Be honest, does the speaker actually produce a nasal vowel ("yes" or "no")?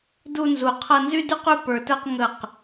no